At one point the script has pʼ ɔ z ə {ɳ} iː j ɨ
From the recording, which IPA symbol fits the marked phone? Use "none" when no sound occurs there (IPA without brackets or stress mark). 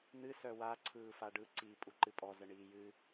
ɳ